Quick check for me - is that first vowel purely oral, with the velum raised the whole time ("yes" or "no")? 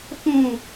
no